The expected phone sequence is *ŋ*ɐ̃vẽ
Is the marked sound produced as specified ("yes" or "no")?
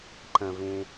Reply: no